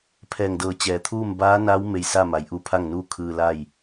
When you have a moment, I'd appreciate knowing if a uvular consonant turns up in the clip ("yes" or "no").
no